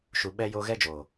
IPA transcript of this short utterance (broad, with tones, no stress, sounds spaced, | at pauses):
ʃ u˨ ɓ ɛ˧ j o˧ ɣ ɛ˦ d͡ʒ oː˨